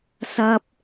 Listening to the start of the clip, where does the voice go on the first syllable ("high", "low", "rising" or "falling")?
high